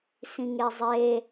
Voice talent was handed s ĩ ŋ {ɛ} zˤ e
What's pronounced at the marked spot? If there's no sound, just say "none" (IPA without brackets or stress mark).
e